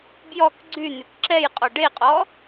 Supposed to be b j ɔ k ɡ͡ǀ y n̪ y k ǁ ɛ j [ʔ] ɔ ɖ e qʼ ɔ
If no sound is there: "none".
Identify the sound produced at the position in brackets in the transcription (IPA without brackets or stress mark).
qʼ